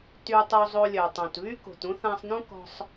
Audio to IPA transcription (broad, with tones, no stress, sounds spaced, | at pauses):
t y˧ tˤ u˧ zˤ o˧ lʲ œ˩ tˤ õ˩ t β y˥ k o̤˩ t ũ˥ θ ã˧ sˤ n ũ˥ k ɔ̤˧ sˤ